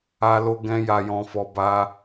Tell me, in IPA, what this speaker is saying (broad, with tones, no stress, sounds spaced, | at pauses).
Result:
a˧ l o˧ ɡ ɛ̃˦ j a˧ j ɔ̃˧ f ɔ˧ b a˦